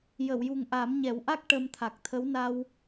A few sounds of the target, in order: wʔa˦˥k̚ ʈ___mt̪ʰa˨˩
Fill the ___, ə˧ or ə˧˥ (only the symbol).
ə˧